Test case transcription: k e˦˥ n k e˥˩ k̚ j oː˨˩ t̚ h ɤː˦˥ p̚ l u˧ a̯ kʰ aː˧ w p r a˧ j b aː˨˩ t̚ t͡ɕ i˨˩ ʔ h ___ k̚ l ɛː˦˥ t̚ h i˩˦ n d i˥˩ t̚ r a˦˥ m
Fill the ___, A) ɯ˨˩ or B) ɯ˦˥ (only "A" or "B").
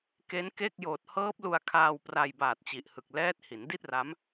A